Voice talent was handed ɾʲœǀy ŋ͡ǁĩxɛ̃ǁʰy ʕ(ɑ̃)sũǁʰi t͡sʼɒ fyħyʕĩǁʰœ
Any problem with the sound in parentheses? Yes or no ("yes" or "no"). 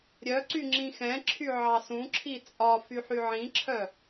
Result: yes